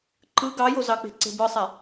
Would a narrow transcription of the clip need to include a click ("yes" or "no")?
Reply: yes